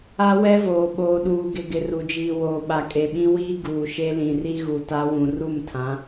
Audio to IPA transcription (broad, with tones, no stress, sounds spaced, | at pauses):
a˦ w ɛ˦ v oː˨ ɓ oː˨ ɗ uː˨ ɡ ɪ˨ ɡ ɪ˨ r u˨ d͡ʒ iː˨ w oː˨ ɓ a˨ kʼ e˨ ɓ ĩ˦ w iː˦ ɡ uː˨ ʃ e˦ l ĩ˨ r i˦ ɣ u˨ t a˦ w ũ˨ r u˦˨ m tʰ ã˨˦